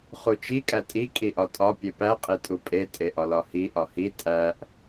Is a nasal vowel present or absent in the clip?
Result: absent